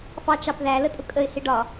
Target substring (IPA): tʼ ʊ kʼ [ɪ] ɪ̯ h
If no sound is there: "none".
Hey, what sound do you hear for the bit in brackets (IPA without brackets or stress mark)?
ə